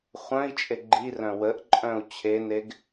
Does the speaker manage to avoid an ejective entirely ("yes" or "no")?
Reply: no